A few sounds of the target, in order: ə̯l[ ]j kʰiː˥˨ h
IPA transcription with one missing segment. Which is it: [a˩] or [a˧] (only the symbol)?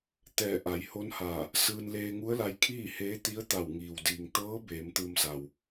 a˧